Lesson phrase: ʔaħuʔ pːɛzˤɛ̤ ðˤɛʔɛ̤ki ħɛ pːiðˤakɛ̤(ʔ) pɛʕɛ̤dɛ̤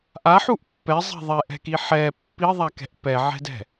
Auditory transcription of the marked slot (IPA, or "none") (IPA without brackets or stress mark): ʔ